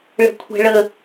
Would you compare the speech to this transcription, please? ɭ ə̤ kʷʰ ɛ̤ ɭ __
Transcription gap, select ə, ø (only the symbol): ə